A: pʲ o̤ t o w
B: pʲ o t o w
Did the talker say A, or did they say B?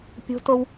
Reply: A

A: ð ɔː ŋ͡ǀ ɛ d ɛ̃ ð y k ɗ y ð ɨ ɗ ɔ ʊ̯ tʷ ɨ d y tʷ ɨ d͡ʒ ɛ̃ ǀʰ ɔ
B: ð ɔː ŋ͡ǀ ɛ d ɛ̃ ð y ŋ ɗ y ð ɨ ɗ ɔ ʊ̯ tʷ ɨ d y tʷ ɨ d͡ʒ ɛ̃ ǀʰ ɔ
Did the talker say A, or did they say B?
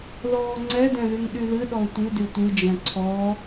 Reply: B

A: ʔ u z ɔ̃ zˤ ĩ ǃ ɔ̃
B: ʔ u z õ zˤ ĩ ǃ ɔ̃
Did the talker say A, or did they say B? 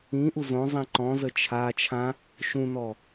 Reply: B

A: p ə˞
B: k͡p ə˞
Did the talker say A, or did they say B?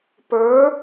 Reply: A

